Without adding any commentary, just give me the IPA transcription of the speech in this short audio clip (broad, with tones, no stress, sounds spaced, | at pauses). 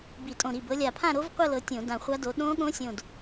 b i˧˩˧ tʼ õ˧˩ ɾ i˧˩ b ɤ˨˦ lʲ a˧˩ pʰ ã˥˧ ɾ o˦˥ v qʷ ɤ˥˧ l ɤ˨˦ tʲ õ˧˩˧ d ã˧˩ χʷ a˦˥ d o˨˦ ɗ õ˦˥ ɠ õ˦˥ sʲ õ˧˩ d